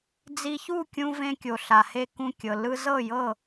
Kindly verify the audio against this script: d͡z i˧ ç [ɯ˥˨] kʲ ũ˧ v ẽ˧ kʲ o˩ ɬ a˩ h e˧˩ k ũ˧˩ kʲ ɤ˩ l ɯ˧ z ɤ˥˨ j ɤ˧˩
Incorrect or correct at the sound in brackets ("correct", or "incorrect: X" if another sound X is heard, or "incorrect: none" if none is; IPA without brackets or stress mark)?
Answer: incorrect: u˥˨